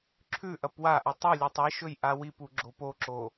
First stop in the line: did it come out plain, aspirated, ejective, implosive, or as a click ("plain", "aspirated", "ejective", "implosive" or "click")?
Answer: click